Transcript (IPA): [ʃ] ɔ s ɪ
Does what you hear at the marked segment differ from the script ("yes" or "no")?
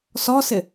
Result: yes